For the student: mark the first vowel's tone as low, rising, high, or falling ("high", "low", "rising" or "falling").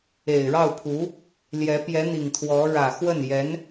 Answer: low